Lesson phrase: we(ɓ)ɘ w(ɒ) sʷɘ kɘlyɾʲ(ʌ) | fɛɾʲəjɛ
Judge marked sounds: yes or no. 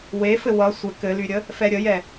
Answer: no, no, no

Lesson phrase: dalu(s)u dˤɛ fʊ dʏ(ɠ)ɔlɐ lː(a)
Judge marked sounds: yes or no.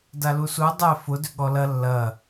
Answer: yes, yes, no

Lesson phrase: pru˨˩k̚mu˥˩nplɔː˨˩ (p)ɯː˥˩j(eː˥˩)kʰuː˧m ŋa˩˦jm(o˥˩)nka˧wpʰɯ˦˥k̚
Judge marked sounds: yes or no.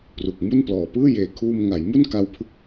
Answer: yes, no, no

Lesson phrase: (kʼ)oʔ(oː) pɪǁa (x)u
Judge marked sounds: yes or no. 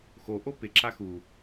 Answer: no, no, yes

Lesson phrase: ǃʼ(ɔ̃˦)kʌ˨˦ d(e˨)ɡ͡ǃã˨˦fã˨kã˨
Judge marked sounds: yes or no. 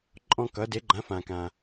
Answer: yes, no

